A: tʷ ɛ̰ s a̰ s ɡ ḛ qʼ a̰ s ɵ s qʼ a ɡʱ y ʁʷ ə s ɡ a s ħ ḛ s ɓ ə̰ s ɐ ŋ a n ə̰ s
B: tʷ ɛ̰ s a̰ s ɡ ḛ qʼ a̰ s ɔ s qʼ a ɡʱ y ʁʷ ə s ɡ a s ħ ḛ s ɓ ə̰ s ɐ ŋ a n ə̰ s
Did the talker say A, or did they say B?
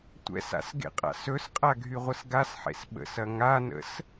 A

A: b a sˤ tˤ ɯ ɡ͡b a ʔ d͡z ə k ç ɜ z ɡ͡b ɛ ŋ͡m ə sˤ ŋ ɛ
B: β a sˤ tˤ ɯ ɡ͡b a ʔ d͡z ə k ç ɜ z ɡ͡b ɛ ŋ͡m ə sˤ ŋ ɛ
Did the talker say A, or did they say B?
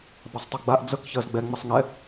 A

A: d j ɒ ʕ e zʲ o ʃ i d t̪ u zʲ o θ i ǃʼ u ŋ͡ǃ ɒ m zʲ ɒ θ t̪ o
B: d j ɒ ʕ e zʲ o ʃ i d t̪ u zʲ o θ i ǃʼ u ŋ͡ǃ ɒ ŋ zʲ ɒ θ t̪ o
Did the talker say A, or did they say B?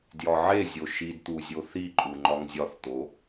B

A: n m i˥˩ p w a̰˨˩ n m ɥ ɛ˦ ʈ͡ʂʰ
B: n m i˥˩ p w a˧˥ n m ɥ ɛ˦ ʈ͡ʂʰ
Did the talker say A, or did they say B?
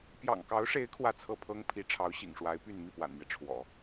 A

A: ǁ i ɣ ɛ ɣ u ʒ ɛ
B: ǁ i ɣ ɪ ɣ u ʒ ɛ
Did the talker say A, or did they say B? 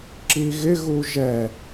B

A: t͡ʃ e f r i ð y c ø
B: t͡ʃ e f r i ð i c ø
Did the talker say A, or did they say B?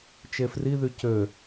A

